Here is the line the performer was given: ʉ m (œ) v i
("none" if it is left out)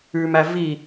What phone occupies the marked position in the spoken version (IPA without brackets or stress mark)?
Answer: æ